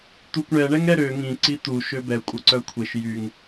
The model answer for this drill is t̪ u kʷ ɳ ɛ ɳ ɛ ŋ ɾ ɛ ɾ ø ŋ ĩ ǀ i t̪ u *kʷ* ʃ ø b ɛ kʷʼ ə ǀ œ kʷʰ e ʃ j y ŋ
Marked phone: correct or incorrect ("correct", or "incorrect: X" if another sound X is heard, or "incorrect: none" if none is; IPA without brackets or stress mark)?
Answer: incorrect: none